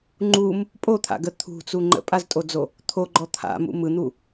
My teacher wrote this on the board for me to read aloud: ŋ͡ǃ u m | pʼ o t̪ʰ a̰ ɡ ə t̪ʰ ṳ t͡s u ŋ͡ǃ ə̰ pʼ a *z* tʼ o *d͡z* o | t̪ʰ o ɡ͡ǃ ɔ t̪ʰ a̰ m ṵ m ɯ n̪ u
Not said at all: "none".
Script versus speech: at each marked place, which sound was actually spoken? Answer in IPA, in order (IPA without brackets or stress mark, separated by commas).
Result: z, d͡z